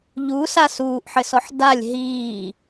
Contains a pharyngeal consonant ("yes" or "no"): yes